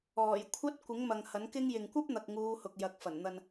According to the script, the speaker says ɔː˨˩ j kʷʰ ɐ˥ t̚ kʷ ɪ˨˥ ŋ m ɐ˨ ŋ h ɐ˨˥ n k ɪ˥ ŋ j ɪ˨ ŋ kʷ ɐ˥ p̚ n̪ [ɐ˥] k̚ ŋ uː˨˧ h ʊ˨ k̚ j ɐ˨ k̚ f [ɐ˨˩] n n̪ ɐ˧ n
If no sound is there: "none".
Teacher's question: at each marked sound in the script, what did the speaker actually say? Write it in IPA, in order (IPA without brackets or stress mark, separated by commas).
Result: ɐ˨, ɐ˨˩